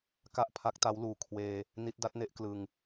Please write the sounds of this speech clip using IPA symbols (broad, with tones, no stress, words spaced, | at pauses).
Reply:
ka˥˩ʔ pʰa˦˥k̚ta˦˥wluː˨˩ kʰweː˧ | ni˦˥t̚ da˦˥t̚ne˦˥ʔ klɯ˧ŋ